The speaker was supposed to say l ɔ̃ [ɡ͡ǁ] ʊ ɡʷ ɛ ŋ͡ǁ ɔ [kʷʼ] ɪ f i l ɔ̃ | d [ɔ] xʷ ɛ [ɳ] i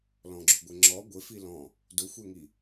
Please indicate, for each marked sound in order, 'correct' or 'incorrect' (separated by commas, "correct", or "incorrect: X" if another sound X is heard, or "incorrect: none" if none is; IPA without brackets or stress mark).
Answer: correct, incorrect: ɡʷ, incorrect: ʊ, incorrect: ŋ